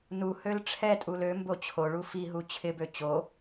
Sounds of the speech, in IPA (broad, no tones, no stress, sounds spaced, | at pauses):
n u h ø l ʈ͡ʂʰ ɛ tʼ u l ø m b o t͡ɕʰ o ɭ u f i ɦ u t͡ɕʰ ɪ b ø t͡ɕ o